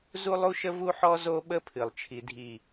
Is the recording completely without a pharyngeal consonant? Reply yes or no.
no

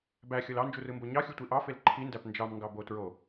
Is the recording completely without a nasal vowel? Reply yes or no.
yes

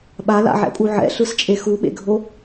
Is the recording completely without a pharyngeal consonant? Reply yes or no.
no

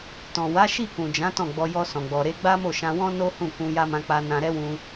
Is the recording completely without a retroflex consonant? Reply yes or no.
yes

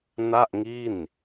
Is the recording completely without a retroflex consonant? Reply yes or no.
yes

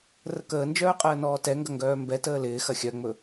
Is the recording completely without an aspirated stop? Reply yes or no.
yes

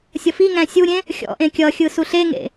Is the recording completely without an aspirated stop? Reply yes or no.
yes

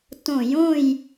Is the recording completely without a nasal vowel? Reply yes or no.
no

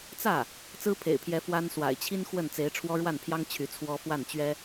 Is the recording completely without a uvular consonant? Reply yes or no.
yes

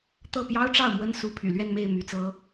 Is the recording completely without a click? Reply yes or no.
yes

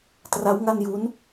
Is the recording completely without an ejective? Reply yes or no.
yes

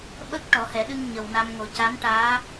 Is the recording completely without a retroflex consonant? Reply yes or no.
no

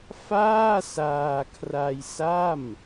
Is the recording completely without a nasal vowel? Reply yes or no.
yes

